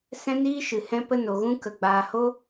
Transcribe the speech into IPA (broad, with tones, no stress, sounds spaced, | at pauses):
s ɛ̃˦ n iː˦ ʃ ɨ˧ h ɛ̃˦ p ə˦ n o˧ ɣ ũ˦ k ə˧ ɡ͡b aː˧ h o˦